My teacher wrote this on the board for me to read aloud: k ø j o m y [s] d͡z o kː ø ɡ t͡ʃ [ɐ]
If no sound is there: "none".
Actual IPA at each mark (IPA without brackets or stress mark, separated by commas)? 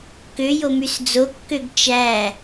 s, æ